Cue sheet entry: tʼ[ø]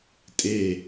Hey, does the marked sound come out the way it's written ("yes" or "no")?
no